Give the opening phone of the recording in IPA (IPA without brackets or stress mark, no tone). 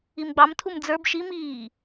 i